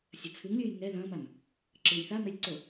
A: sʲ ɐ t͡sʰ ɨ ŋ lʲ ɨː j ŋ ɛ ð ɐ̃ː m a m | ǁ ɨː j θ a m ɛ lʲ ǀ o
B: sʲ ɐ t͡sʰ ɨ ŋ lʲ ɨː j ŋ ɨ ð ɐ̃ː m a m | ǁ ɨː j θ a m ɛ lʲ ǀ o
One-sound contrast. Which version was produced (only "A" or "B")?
A